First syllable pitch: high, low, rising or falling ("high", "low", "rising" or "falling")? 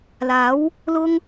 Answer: rising